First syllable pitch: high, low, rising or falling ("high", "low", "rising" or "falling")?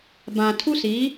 low